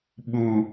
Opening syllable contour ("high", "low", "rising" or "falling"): low